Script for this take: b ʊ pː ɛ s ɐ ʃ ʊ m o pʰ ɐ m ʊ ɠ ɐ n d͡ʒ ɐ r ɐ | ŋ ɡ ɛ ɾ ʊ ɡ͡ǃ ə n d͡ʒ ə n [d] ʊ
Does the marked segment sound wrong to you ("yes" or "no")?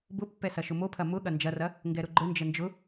yes